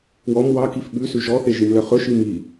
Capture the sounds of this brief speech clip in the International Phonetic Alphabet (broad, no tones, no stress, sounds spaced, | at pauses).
w ɔ m w ɑ k i f ɓ ʉ s ʉ ʒ ɔ θ e ʒ i m l œ χ ɵ ʃ i m i